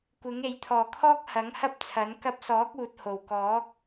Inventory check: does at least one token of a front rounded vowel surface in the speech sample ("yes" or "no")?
no